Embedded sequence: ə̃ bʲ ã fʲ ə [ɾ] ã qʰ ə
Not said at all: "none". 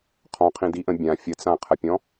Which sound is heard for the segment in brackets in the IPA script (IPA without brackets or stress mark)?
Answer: t͡s